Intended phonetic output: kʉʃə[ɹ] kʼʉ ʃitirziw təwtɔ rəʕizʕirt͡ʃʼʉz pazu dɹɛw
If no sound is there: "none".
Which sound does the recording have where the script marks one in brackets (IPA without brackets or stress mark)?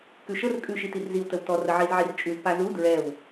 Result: r